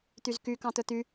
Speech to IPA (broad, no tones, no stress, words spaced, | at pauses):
t̪yzky kɑ̃t̪ɵt̪y